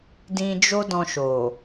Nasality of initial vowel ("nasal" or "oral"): nasal